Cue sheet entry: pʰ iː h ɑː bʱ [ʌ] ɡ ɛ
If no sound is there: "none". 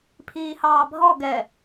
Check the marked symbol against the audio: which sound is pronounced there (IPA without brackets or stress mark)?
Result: ɔ